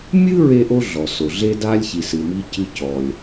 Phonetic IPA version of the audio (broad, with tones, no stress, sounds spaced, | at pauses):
mʲ ɨ˥ ɹ e˥ ʔ o˥ ɮ ɔ˩ s o˩ ɮ e˥ d a˥ lʲ ç i˩ s ɨ˩ m i˥ c ɨ˥ c ɔ˩ lʲ